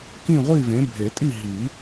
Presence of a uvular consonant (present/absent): present